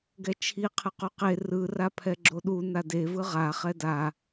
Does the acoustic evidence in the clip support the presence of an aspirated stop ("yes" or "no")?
yes